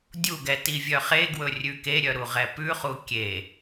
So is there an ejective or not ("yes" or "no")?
no